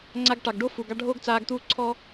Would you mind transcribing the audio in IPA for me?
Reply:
ŋ͡ǀ a˧ ɡ ʈ ɑ˨ ɡ ɖ o˦ f u˨ ɡ ɑ˧ ɖʱ oː˦ ɡ t͡s aː˧ ɡ t̪ uː˦ ǀʰ ɔ˦

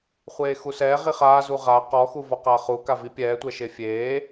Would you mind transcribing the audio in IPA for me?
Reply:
χʷ eː x u s ɛː ʁ i χ aː z u ʁ aː q ɔ x u v ɔ q aː χ u k a v i pʲ ɛː tʷ ɛ ʃ e fʲ eː

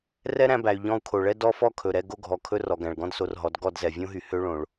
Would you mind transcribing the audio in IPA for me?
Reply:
r ɛ˦ ɾ æ̃˧ b æ˨ y̯ ʎ ɔ̃˧ u̯ kʰ o˨ ɭ ɛ˦ d ɔ˦ f ɔ˦ kʰ ɵ˨ ɾ ɛ˧ ɡ o˧ ɡʱ ɔ˨ kʰ ɵ˧ r ɔ˨ ɡ æ̃˨ ɭ ɡ ɔ̃˦ d s o˧ r ɦ ɔ˨˦ d ɡ ɔ˦˨ d z ɛ˨ vʲ õ˦ ɦ y˨ h ø˦ ɭ õ˨ ɭ

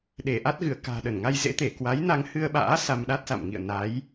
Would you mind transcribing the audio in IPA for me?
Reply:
ɗ e˧˩ ʔ a˦˥ t̚ ɣ ɨ˧˩ ə̯ k a̤ː˨˩ ɗ ə˧˩ n ŋ a˧ j z ḛ˧˥ t̪ e˧˩ k w a˨˦ j n a˧ ŋ h ɨ˧ ə̯ ɓ a̰ː˧˥ s a˧ m ɗ a˦˥ t̚ s a̰˧˨ m ŋ ḭ˧˨ ə̯ n a˨˦ j

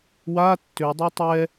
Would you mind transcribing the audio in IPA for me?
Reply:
w a tː ø dˤ ɛ tˤ ɛ

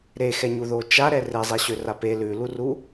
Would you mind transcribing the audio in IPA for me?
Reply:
ɾ e x ɛ ɲ u ð o t͡ʃ a ɾ ɛ r e zˤ e ɕ ø r a p e l ʉ l u r u

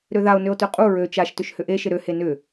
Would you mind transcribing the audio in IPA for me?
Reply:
ɾ ø ð a o̯ n ø o̯ t ø qʼ u ɹ ø t͡ʃ a ʃ t ʏ ʃ h ʏ ʔ e ʃ ɪ ɾ ø h e n ʏ

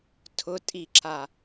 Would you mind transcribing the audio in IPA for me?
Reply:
tʰ ʊ tʼ i ǁ a

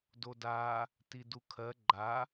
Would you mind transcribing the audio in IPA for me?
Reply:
d o d a | t i d u kʰ ɜ ɡ͡ǃ a

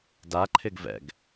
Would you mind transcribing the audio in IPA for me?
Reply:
d a ǃʰ ɪ ɡ v ɛ̰ ɡ

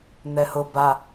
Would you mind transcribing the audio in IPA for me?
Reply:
n̪ ɛ h ʊ b a

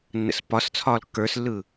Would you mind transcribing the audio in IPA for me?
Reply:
nː ə̰ s p ɒ s t͡sʰ ɒː l kː ə˞ s lː ɯ

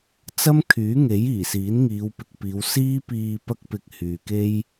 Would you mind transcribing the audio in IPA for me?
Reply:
t͡s ɐ˥ m kʰ yː˨˥ ŋ e˨˥ j iː˨˩ s iː˨˥ n ŋ iː˨˧ w p ɪ˨ k̚ p iː˨˧ w s iː˥ p iː˧ p ɐ˥ k̚ p ɪ˧ k̚ h yː˨ k e˥ j

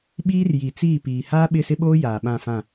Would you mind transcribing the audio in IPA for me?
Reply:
ɓ iː˦ r j i˨ t͡s iː˦˨ p iː˨ h aː˦ ɓ ɪ˦˨ s ɪ˦ ɓ oː˦ j aː˨ ɓ ã˦˨ f ã˦˨

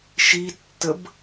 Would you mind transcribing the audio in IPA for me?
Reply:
ʃ i tː ə b

